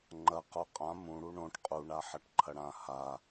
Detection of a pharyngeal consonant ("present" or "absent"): present